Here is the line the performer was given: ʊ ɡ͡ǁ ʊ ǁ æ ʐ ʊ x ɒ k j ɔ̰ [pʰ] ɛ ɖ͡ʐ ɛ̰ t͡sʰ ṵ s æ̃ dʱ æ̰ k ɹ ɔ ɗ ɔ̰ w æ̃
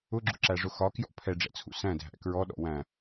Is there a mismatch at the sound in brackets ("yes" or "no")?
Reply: no